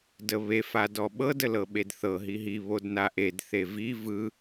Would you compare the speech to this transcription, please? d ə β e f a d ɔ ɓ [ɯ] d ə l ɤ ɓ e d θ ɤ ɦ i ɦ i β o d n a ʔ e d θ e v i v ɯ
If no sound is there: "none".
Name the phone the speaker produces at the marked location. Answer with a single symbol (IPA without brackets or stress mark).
ɤ